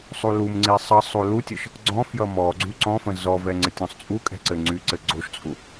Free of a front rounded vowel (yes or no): no